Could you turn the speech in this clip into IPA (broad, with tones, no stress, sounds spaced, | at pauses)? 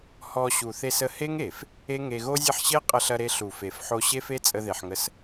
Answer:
h ɔ˧ ɕ u˨ θ e˧ s ə˧ h e˦ ŋ e˨ f | e˦ ŋ e˧ ɣ o˦ zʲ ɐ˦ ħ ɕ e˦ qʼ ɐ˧ ɬ ɐ˧ ɾ e˧ ɬ u˨ f e˨ f ħ o˧ ɕ e˦ f e˦ t͡sʼ ə˧ ð e˨ ħ ŋ ə˧ s